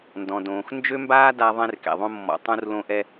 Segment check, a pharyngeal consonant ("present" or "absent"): absent